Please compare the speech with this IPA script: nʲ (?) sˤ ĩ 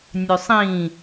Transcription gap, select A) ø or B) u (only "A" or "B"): A